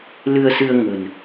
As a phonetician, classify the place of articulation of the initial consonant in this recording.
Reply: alveolar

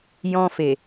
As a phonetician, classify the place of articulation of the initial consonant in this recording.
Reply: palatal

